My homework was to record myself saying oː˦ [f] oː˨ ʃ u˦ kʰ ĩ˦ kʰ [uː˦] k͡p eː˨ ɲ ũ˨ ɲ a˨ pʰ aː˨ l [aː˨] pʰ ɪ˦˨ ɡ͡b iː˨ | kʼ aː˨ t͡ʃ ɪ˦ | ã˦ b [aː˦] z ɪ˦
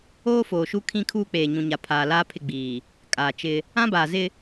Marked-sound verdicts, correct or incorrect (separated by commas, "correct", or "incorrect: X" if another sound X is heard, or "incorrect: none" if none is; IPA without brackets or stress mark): correct, correct, incorrect: aː˦, incorrect: aː˨